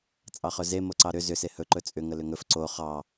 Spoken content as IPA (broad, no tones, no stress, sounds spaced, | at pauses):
t͡sʼ ɑ χ ɵ z e m o ǀ ɑ ɾ ʏ z ʏ s e h ɵ ǃ ɵ t͡sʼ ʏ ŋ ə l ʏ ŋ ɵ f ǀ o χ ɑ